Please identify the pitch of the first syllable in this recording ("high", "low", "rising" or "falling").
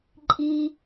high